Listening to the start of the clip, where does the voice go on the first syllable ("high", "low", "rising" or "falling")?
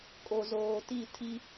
low